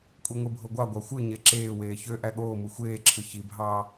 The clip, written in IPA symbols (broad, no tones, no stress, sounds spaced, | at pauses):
kʷʼ i ŋʷ i bʱ o ɡʷ ɑ ɡʷ ɑ xʷ ɯ ɲ e ǁ eː w eː ç ø ʔ æ ɠ oː m ɯ xʷ eː ǁʰ ɯ ç i bʱ ɑː